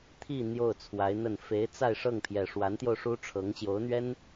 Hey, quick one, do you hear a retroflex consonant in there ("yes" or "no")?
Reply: yes